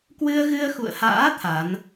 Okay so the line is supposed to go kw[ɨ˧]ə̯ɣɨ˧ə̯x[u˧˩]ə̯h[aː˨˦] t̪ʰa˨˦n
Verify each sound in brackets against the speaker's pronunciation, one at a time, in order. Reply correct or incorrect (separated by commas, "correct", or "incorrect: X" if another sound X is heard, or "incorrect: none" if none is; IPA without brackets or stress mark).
correct, incorrect: ṵ˧˨, incorrect: a̰ː˧˥